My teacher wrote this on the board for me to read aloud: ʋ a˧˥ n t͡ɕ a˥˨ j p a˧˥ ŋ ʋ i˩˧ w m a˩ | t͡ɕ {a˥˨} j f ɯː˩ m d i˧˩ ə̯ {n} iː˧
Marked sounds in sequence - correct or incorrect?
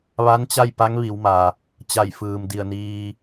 incorrect, correct

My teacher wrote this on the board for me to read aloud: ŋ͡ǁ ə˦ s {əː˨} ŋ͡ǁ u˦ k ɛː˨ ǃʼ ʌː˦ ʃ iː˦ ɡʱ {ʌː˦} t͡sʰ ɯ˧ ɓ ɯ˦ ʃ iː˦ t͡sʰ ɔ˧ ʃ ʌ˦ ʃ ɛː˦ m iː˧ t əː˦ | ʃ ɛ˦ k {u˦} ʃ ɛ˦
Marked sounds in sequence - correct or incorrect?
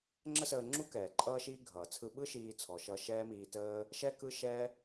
incorrect, incorrect, incorrect

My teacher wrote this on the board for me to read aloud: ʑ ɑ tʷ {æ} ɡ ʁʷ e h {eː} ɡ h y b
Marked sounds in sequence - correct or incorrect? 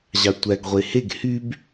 correct, incorrect

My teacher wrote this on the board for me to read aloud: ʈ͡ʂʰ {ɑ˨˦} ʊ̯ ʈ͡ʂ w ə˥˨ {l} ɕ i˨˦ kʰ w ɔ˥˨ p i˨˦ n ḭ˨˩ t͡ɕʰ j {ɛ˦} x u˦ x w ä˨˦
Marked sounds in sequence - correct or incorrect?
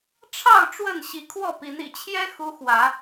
incorrect, incorrect, correct

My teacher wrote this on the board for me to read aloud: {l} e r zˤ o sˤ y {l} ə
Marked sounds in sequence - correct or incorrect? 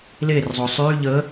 correct, incorrect

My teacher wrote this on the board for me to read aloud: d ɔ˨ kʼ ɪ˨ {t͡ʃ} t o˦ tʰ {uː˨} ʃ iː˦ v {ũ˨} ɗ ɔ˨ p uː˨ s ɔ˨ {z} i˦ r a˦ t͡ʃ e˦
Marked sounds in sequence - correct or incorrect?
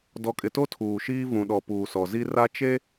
incorrect, correct, correct, correct

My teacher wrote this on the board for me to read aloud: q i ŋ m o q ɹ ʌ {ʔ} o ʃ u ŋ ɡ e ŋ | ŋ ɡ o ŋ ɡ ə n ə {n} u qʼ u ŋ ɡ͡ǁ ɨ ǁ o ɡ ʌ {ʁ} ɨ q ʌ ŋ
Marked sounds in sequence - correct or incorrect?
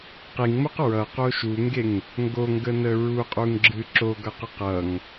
incorrect, incorrect, incorrect

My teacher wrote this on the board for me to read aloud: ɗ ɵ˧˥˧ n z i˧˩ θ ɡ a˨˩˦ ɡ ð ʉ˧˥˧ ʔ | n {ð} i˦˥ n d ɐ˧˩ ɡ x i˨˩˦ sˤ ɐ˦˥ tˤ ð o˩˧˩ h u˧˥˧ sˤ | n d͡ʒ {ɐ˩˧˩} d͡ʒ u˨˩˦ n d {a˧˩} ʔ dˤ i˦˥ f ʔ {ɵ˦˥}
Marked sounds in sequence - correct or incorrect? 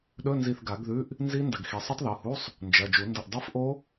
incorrect, correct, incorrect, incorrect

